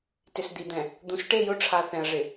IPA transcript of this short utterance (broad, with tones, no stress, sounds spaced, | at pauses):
t ɪ˨ s d̪ i˨ d̪ ɛ̃˨ | d̪ ũ˨ s ʈ e˦˨ j ʊ˦ ʈ͡ʂʰ a˨ θ ɛ̃˨ ə̯ ʐ ɪ˨